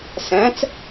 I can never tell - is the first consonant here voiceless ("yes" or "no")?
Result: yes